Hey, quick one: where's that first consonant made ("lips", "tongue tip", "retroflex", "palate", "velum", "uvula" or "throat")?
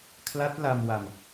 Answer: velum